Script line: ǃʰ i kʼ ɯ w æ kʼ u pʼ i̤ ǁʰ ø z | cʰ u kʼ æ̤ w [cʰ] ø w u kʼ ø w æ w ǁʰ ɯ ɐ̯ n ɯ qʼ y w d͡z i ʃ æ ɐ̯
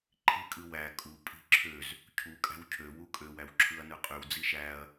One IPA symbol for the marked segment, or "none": cʰ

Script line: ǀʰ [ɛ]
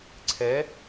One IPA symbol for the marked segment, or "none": e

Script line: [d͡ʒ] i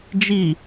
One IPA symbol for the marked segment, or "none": d͡ʒ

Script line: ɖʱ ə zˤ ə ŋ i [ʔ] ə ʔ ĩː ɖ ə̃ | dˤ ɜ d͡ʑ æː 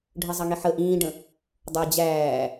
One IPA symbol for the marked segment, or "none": ħ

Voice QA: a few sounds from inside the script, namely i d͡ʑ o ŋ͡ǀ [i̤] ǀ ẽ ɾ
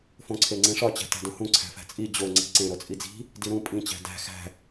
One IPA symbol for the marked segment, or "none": i̤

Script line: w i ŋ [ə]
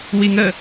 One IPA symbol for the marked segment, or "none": ə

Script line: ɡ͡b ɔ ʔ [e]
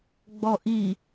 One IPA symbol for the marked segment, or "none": i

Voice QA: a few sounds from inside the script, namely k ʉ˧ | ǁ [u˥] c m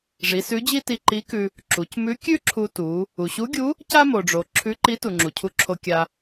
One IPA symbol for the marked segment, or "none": u˩˧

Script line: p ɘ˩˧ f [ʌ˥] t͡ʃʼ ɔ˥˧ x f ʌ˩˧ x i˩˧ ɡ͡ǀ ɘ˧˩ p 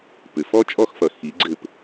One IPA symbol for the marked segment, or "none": ɔ˥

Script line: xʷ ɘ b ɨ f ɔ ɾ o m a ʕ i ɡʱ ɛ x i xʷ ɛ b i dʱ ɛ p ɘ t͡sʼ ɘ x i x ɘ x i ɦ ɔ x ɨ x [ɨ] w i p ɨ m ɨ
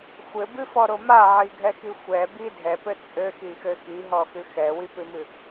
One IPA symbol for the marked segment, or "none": ɛ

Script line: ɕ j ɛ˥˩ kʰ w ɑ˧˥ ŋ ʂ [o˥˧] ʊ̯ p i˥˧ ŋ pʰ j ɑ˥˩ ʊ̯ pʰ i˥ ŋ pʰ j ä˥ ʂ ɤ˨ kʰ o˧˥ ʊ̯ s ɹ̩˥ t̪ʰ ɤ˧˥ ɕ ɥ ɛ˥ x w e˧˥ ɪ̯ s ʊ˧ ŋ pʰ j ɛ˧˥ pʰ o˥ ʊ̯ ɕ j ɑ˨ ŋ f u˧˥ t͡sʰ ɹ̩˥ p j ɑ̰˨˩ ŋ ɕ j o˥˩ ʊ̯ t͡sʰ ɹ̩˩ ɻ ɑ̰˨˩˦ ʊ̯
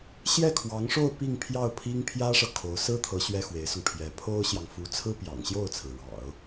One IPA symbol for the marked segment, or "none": o˥˧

